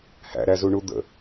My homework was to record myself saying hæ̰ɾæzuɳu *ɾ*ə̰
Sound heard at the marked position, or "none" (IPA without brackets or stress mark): d̪